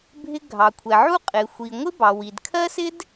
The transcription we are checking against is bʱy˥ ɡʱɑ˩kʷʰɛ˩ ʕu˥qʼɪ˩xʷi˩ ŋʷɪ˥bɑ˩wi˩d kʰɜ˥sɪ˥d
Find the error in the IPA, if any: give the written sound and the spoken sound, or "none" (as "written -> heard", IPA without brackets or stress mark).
y˥ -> ɪ˥